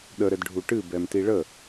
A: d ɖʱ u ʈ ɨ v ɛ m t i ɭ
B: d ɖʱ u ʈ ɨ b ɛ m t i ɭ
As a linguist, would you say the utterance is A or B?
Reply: B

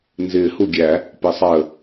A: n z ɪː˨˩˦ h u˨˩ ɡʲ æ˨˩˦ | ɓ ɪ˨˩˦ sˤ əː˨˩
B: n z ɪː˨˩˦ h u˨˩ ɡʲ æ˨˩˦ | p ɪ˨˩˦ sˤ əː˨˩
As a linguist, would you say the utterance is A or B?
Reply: B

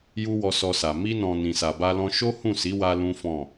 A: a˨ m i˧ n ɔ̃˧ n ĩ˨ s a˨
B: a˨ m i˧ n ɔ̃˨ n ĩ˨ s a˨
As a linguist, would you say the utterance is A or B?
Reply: B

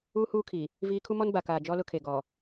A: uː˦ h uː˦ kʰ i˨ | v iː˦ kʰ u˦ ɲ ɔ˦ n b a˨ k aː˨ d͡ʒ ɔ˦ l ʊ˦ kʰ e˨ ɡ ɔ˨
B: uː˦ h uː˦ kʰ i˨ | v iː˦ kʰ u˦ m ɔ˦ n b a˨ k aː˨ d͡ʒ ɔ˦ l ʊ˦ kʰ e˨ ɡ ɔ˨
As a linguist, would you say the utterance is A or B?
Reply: B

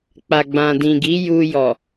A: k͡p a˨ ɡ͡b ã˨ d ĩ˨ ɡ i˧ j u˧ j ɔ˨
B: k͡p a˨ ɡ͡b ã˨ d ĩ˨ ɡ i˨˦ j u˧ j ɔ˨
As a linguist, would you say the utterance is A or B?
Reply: B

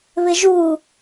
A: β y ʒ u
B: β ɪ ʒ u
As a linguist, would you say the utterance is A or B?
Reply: B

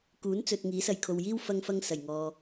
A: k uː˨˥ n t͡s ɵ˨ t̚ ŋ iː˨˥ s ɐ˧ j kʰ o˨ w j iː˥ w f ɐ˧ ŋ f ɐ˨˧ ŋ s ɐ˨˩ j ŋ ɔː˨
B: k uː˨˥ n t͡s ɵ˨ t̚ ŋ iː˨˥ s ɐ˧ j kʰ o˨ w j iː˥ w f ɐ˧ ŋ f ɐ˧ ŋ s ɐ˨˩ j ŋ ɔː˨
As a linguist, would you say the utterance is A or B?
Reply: B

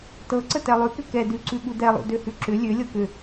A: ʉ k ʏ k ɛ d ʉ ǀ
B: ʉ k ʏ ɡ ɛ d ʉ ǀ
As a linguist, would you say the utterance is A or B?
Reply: A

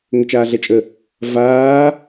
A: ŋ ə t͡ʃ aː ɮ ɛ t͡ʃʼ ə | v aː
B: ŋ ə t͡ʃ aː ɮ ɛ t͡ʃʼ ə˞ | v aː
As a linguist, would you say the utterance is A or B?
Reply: A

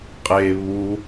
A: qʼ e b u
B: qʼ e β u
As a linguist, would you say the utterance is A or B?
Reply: B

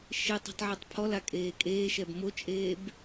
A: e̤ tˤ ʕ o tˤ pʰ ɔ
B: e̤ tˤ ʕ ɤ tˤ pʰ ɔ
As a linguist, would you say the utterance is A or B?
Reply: B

